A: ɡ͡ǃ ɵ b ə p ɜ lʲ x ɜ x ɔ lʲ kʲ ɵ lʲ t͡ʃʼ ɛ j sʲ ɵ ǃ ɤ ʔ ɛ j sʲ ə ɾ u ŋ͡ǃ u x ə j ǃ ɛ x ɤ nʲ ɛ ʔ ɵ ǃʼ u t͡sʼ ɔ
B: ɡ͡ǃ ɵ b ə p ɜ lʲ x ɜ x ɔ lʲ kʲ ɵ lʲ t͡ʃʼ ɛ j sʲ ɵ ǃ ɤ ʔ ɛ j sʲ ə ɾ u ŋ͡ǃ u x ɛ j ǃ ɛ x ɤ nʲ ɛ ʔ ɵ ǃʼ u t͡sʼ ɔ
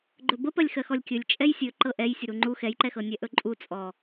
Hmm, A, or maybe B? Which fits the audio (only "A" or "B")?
B